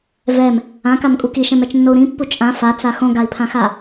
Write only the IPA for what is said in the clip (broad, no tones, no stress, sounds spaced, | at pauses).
v ɛ m | ã k a m kʼ u k i ʃ ɛ̃ m ɛ t͡ʃ nː o u̯ ɾ ĩ pː u t͡ʃʼ ã f a t͡s a x õ ɡ a i̯ pʰ ã x a